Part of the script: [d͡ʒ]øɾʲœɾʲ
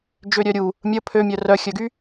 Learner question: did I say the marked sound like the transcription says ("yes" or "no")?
yes